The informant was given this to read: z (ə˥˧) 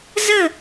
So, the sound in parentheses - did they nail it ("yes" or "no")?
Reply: yes